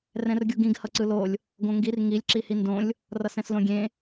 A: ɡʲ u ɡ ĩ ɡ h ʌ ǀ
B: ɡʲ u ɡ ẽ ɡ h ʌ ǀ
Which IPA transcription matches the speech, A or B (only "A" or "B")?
A